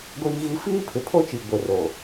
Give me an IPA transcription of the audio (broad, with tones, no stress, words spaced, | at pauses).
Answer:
ɡʷiː˦ɣi˦ fiː˦pʰɪ˨pʰo˦t͡ʃi˨ ɡʷɪ˨ro˨